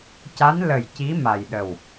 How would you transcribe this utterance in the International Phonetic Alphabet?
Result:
c a˧˥ n l ə˨˩ j c i˧˥ m a˨˩ j ɗ ə˨˩ w

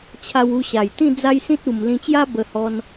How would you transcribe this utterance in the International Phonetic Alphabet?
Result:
t͡ɕʰ a˧ w u˧ ɕ a˨˩ j t̪ ĩ˥˧ d͡z a˦ j s ĩ˦ t̚ u˧ m l ĩ˧ t͡ɕ j a˦ b ə˧ h ɔ˧ n

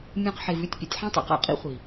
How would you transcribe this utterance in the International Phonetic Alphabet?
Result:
mʲ õ˧ q ħ e˨ v ʉ˦ tʲ pʲ ḛ˨ tʲ ħ ã˦ tˤ a̰˨ q a̰˦ qʼ ḭ˦ χʷ i˨

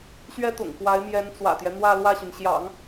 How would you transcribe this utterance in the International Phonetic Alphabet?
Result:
ɕ ɥ ɛ˥ t̪ ʊ̰˨˩ ŋ k w a˧˥ ɪ̯ m j ɛ˧˥ n t͡s w ä̰˨˩ t̪ j ɛ˦ n̪ w ä˥˧ l w ä˥˩ ɕ y˩ n ɕ j ɑ̰˨˩˦ ŋ

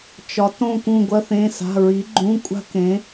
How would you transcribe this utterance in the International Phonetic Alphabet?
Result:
t͡ʃ ɒ˩˧ t õ˦˨ k ũ˦˨ ɡʷ ɐ˥ θ ẽ˧˥˧ s a̤˧˥˧ ɹ i˨˥ ɡ͡ǃ ũ˧˥˧ kʷʼ a̤˥ k ẽ˨˥

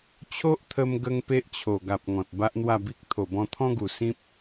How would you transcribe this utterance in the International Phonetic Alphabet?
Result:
t͡ɕʰ o˦ ʔ t̪ʰ ə˧ m ɡ ə˧ ŋ p e˦ ʔ t͡ɕʰ o˨˩ ɡ a˨ p̚ ŋ ɔ̃˨ t̚ b a˦ ʔ n̪ w a˥˧ b i˦ k̚ t̪ʰ o˨˩ b ɔ̃˧ t̪ʰ ɔ̃˦ ɡ u˨˩ s ĩ˦ p̚

